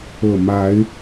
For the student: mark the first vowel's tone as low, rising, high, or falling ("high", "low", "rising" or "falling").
low